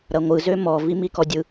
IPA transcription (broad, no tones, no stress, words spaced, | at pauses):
ɾɐŋʷɯ zømɔ vimikɔdʲɯ